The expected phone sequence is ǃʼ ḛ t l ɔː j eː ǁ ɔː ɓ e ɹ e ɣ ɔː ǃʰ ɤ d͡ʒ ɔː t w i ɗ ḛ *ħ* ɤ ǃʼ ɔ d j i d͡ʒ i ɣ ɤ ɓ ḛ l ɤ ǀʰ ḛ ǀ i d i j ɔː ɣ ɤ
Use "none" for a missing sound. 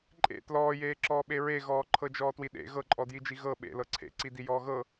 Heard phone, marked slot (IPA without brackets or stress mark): ɣ